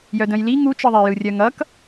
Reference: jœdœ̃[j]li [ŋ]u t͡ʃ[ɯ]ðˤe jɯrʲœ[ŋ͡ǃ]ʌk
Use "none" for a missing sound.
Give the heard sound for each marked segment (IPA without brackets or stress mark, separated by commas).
j, ŋ, ɯ, ŋ